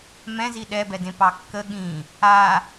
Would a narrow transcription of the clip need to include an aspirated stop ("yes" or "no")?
no